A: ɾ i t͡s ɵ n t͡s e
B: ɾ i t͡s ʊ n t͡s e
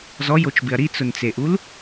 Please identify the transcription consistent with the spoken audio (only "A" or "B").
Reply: B